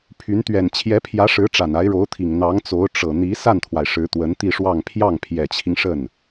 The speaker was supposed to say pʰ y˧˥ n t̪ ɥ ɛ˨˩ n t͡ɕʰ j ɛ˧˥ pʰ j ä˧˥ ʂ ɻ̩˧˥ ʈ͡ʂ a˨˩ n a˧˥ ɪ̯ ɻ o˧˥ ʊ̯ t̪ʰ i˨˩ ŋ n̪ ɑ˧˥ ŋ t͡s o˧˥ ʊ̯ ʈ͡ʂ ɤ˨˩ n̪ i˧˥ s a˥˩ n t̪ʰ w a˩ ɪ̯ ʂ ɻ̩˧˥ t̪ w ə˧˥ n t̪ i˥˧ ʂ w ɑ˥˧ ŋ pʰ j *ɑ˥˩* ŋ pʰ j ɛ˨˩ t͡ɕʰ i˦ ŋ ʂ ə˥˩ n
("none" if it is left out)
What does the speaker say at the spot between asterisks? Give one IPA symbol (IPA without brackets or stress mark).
ɑ˥˩